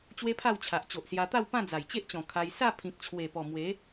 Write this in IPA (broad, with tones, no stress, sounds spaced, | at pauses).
t͡ɕ w e˦ pʰ a˥˧ w t͡ɕʰ a˨ ʔ t͡ɕ o˨ ʔ s j a˧ t̪ a˥˧ w p ã˥˧ d͡z a˨˩ j t͡ɕ e˦ ʔ t͡ɕ ɔ̃˨˩ kʰ a˧ j s a˥˧ pʰ ĩ˨ k̚ t͡ɕʰ w e˨˩ p ɔ˨˩ m w e˨˦